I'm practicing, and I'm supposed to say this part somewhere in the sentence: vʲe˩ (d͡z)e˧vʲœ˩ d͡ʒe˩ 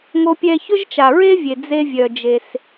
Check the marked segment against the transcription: correct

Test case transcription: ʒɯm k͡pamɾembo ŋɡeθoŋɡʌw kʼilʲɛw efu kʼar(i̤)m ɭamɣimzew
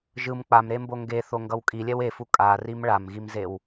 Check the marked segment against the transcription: incorrect: i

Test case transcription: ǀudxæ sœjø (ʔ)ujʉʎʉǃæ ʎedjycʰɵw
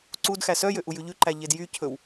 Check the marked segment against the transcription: correct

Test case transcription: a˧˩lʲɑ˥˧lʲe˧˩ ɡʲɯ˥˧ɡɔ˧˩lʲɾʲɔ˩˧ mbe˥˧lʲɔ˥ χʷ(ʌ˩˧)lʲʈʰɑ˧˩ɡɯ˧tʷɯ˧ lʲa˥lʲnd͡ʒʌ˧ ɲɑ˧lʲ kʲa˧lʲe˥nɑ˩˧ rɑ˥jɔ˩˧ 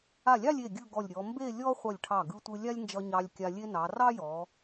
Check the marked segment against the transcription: incorrect: ʌ˧˩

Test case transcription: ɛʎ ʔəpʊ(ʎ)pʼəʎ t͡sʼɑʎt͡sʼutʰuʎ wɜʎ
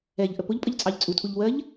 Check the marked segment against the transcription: correct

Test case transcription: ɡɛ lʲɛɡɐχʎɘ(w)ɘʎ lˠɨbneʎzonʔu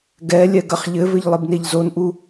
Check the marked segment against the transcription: incorrect: v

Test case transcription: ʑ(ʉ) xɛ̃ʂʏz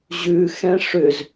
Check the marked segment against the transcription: correct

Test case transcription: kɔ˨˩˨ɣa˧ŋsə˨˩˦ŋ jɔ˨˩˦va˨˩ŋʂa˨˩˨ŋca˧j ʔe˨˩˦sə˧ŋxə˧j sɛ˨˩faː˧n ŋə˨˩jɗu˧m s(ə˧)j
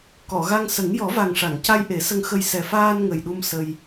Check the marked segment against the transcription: correct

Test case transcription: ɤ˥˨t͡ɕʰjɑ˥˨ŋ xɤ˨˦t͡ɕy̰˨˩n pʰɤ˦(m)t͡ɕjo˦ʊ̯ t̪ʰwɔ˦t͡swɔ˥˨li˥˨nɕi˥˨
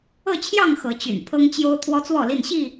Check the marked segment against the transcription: incorrect: ŋ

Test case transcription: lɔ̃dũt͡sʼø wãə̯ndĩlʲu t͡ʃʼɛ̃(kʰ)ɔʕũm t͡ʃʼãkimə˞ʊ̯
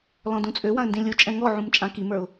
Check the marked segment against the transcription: incorrect: ŋ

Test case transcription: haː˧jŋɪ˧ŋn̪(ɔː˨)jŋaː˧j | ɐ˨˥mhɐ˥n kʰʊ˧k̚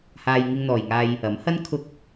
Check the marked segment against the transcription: correct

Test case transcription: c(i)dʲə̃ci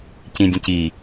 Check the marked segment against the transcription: incorrect: ĩ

